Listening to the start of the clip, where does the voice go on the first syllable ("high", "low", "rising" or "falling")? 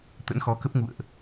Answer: rising